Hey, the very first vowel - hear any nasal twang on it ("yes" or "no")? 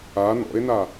no